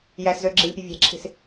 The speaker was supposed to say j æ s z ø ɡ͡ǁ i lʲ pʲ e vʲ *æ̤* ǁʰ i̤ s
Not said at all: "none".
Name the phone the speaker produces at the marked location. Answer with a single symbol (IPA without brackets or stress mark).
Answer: æ̤